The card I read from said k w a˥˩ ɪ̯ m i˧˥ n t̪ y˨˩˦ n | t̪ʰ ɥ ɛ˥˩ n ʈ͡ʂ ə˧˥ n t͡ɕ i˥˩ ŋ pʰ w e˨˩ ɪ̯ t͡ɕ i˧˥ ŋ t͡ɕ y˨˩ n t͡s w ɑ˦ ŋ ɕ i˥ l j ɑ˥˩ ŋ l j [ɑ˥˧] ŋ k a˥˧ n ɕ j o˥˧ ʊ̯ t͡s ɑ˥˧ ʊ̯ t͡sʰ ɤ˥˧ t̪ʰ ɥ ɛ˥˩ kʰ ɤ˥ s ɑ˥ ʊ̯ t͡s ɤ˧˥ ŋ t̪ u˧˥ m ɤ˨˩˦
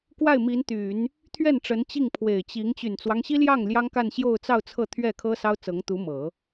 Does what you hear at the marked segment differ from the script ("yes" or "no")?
yes